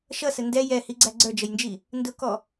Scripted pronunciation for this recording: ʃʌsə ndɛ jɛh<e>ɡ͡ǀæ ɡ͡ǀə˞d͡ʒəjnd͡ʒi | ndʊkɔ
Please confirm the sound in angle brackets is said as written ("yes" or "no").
no